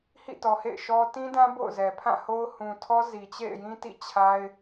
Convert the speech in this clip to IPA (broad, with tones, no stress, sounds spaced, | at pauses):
h ḭ˦˨ t ɔ˨ h ḛ˦˨ ɪ̯ ʃ ɔ˦ t ĩ˦ d ã˦ b o̰˦˨ ʊ̯ z ɛ˨ pʰ ã˦˨ h o˦ ʊ̯ h ũ˨ tʰ ɔ˦ z i˨ t͡ɕ ḛ˦˨ ɪ̯ j ĩ˦ t ḭ˦˨ t͡ɕʰ a˦ ɪ̯